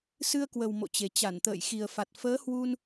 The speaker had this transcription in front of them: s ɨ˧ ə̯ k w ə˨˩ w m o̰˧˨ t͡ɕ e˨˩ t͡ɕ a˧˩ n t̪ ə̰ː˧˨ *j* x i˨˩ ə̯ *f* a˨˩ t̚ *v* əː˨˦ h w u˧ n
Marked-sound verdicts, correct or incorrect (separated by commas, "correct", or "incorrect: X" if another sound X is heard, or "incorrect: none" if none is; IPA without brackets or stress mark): correct, correct, incorrect: f